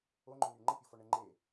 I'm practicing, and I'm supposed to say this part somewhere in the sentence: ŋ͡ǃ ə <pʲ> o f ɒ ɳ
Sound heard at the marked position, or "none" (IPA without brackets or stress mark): pʲ